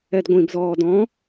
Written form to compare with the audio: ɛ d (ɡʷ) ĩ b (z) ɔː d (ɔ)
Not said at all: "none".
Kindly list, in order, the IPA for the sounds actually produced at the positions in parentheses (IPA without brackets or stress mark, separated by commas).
ɡʷ, z, ɔ̃